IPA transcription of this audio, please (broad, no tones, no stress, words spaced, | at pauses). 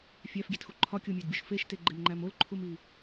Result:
fʲæfɡʲetxu ǃʰɒkʲomʲædbʲuʃ feʃteɡ͡ǃemŋ͡ǃæm olǃʰumi